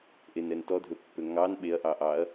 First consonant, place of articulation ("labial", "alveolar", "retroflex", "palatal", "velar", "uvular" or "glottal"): glottal